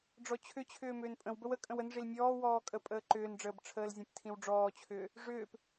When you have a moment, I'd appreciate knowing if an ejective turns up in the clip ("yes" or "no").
yes